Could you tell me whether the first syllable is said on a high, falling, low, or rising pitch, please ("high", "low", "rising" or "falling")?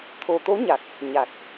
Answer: low